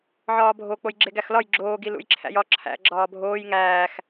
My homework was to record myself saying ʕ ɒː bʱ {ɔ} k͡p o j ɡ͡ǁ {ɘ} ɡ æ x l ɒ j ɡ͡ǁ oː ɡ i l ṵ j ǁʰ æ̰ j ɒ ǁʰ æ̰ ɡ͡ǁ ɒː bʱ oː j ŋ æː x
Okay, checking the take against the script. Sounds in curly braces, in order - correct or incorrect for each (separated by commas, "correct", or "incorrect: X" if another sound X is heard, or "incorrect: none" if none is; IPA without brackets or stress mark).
incorrect: o, incorrect: e